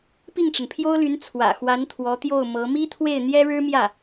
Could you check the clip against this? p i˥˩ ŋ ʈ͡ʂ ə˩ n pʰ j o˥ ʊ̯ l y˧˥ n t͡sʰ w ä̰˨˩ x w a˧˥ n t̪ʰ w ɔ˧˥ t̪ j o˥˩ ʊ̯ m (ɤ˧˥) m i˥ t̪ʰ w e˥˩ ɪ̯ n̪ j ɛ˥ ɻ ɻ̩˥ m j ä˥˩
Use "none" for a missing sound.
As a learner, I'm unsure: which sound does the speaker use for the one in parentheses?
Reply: ɤ˧˥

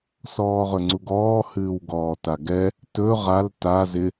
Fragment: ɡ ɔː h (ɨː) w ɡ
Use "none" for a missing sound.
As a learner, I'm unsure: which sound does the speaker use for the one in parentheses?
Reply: ɨː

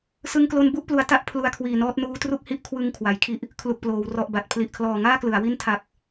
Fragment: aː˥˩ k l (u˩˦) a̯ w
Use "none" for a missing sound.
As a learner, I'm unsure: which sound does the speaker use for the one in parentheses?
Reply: ɯ˩˦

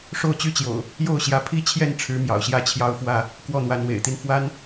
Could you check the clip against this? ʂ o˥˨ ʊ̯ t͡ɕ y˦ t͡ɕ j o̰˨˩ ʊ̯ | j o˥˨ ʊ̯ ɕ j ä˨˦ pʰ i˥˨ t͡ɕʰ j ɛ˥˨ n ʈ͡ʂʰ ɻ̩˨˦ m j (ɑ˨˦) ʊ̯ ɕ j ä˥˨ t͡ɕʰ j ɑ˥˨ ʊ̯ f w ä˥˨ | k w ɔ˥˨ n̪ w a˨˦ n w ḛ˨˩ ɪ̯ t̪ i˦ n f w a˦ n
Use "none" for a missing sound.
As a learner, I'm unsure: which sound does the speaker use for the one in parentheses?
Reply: ɑ̰˨˩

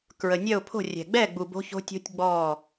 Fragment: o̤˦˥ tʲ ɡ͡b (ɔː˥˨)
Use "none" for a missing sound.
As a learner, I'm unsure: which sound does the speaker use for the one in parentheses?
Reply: ɔː˥˨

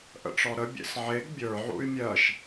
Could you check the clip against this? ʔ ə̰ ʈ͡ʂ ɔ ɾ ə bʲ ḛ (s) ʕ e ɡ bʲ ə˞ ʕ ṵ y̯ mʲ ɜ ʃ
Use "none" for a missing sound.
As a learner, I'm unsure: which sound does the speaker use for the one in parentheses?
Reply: s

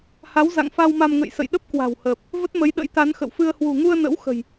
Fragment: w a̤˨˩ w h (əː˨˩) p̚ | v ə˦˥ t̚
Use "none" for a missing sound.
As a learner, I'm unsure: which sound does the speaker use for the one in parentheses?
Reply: əː˨˩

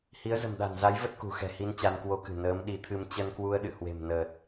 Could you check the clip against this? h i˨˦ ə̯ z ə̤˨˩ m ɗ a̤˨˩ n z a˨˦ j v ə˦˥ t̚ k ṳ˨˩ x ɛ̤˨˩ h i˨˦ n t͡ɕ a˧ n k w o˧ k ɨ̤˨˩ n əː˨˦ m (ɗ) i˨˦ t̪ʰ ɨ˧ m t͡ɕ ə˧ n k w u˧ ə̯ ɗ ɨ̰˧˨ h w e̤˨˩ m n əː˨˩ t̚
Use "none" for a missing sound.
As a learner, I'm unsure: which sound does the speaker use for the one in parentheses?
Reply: ɗ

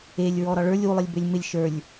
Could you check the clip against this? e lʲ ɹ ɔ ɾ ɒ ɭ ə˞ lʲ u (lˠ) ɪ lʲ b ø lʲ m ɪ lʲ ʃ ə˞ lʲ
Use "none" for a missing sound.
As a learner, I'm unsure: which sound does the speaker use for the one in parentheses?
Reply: lˠ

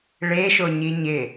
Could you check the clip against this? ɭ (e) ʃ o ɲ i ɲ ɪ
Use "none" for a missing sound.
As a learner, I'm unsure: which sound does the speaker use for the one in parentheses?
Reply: e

